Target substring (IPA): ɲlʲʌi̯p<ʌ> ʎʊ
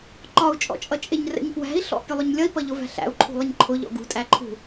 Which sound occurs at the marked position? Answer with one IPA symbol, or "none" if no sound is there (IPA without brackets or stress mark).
ʌ